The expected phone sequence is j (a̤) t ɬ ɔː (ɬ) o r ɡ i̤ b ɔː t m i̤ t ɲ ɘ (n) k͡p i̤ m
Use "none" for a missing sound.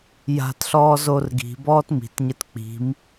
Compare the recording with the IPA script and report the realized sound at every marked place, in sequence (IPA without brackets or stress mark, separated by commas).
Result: a̤, z, t